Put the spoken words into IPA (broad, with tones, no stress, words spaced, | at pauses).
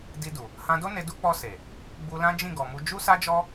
di˧du˨ | hã˧do˦ ne˧du˦ k͡pɔ˧ se˨ | ɡ͡bu˧lã˦d͡ʒĩ˦˨ ɡɔ˨mu˧ d͡ʒu˦sa˦d͡ʒɔ˦